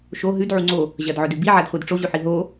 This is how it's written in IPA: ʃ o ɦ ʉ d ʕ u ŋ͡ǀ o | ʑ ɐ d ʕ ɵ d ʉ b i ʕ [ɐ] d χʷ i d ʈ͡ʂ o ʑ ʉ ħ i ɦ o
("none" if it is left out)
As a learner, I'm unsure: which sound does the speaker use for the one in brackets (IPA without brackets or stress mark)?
a